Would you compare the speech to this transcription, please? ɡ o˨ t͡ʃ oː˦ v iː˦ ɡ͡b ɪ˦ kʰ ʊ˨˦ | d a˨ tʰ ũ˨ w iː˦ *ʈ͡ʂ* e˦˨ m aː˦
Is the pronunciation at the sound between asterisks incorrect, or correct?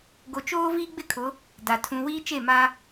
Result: incorrect